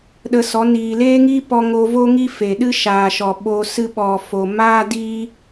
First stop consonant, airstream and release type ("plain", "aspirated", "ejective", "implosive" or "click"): implosive